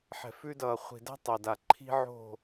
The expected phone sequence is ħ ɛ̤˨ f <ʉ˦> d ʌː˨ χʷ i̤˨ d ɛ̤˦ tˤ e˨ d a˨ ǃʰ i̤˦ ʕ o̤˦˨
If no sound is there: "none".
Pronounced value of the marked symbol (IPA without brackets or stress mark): ʉ˦